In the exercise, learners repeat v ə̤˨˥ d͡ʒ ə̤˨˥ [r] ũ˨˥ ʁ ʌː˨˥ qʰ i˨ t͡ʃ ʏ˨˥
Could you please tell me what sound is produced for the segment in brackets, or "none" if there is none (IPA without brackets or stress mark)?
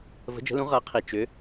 l